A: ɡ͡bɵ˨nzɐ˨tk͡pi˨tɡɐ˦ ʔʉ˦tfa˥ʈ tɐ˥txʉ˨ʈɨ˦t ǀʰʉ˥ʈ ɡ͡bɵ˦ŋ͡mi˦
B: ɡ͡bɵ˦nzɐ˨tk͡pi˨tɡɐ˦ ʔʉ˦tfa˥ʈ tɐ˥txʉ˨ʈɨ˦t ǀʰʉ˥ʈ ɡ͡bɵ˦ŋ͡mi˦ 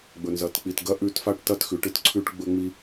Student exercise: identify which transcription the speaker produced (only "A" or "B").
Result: A